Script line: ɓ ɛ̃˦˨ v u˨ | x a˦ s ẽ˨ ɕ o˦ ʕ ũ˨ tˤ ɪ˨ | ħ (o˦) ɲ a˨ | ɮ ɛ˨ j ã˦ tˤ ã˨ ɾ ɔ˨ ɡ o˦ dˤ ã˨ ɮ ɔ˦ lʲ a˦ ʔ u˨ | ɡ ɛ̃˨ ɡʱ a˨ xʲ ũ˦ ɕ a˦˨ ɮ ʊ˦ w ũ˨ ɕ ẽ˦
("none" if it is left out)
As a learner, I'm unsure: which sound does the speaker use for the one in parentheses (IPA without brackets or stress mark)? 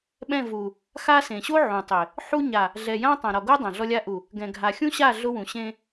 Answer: u˦